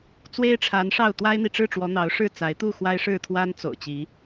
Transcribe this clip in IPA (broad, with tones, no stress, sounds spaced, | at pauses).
t͡s w e˦ ɪ̯ ʈ͡ʂʰ a˨˦ n ʂ ɑ˥˨ ʊ̯ t̪ w a˦ ɪ̯ n̪ i˨ ʈ͡ʂ ɻ̩˥˨ ʈ͡ʂ w ɔ˨˦ n̪ ɑ˨˦ ʊ̯ ʂ ɻ̩˥˨ t͡s a˨˦ ɪ̯ t̪ u˥˨ x w a˦ ɪ̯ ʂ ɻ̩˥˨ t̪ʰ w a˦ n t͡s o̰˨˩ ʊ̯ t͡ɕ i˨˦